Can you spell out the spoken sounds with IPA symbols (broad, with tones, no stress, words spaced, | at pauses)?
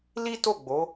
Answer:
li˦to˦˨ɡ͡bo˨˦